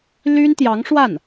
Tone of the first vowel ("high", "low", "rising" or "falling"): high